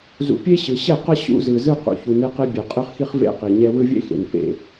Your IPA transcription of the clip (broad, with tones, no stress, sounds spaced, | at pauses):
z ṵ˨ pʲ e˦ ɕ ɯ˨ ɕ ɛ˦˨ q ʌ˦ ɕ ṵ˦ z ɯ˨ z ɯ˦ q ṵ˨ ç u˨ n e˦ q e˦ bʲ e˨ qʼ ɯ˦ χ x i˦ χ v ḛ˦ q i˨ ɲ ɛ˦ w ɯ˦ vʲ ḛ˦ x ḛ˨ n p ḛ˨